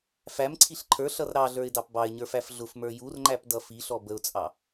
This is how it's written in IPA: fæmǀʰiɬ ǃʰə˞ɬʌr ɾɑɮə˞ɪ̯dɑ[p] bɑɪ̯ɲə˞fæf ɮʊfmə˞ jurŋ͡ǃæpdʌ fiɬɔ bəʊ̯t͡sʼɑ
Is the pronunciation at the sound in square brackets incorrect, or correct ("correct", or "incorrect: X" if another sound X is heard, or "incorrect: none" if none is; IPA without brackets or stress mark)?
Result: correct